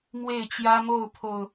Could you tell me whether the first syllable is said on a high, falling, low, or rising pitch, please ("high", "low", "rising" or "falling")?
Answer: falling